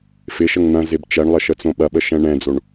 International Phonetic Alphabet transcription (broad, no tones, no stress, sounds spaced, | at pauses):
f ɪ ʃ ə ŋ n̪ ɐ̃ z ɪ b t͡ʃ ɛ ɳ lˠ ə ʃ ə t͡s õ ɓ ɐ ɓ ə ʃ ɛ̃ ɳ ɛ̃ d͡z o ɳ